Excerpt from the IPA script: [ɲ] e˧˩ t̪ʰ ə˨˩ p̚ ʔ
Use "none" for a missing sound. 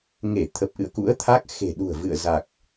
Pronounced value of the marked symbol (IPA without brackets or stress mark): ŋ